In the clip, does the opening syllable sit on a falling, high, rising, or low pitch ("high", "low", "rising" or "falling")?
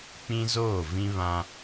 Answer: high